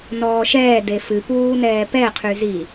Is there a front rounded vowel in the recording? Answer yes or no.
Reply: yes